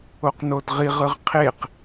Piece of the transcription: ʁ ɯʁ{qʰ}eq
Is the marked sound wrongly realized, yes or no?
no